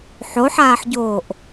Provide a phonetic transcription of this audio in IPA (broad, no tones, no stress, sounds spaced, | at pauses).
ħ o ħ aː ħ ɟ oː ʔ